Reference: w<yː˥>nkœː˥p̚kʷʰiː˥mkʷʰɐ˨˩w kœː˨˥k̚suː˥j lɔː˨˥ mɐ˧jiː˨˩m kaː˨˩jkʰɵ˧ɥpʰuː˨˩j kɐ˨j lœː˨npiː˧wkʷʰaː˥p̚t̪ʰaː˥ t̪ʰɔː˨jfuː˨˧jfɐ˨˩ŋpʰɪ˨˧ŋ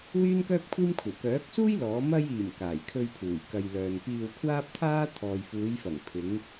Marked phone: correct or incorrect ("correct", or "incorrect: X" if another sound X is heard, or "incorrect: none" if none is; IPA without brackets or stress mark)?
correct